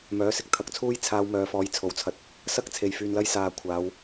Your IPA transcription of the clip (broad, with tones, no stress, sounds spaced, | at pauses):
m œː˨˥ s ɪ˨˥ k̚ t̪ʰ ɐ˨˥ k̚ t͡sʰ uː˥ j t͡sʰ aː˧ w m œː˨˧ f ɔː˨˥ j t͡sʰ o˨ w t͡sʰ ɐ˧ t̚ | s ɐ˥ k̚ t͡sʰ e˨ j f yː˧ n l ɐ˥ j s aː˨ kʷʰ aː˨˧ w